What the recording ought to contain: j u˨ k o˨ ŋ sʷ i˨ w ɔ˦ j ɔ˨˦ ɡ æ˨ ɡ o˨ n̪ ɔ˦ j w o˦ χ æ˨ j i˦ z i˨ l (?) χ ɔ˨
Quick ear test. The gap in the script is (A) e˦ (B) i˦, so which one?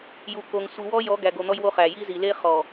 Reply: A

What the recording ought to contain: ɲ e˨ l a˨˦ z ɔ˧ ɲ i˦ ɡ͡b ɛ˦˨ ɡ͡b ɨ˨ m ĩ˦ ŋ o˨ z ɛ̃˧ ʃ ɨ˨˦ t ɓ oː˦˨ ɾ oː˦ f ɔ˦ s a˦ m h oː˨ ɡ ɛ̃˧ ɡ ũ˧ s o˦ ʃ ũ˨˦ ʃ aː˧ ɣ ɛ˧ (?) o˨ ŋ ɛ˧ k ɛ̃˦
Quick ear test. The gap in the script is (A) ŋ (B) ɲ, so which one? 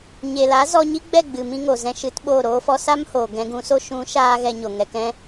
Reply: B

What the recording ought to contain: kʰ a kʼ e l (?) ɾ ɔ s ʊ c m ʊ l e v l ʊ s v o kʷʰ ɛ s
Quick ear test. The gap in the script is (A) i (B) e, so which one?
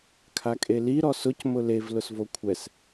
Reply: A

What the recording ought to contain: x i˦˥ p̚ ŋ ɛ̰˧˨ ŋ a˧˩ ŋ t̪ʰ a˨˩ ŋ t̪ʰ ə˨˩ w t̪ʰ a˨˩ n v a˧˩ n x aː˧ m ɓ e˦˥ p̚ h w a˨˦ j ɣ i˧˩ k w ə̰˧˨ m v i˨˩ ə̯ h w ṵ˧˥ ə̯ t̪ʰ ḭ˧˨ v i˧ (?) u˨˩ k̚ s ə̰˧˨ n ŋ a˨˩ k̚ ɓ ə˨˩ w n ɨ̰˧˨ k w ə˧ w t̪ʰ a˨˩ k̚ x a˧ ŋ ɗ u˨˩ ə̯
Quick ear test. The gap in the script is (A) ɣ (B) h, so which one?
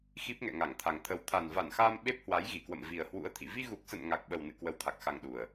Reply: A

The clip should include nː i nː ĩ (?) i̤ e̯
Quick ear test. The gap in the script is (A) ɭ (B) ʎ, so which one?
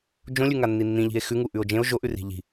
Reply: B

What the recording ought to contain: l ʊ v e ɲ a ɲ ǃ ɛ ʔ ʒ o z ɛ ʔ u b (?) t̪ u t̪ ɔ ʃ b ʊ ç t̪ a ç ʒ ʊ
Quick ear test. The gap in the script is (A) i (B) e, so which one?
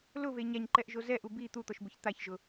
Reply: A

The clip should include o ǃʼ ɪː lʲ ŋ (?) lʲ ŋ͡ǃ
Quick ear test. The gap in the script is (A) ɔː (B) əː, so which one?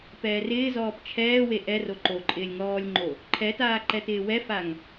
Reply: A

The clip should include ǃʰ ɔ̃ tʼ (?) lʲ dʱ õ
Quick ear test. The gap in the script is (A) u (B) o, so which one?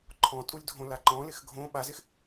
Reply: A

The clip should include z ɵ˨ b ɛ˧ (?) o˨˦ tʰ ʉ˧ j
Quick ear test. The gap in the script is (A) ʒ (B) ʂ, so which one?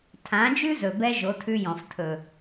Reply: A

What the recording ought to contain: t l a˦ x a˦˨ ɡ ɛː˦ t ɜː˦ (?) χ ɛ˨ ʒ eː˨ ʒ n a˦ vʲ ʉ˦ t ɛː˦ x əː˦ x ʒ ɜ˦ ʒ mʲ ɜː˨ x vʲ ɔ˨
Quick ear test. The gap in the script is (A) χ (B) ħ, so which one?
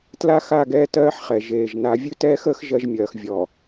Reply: B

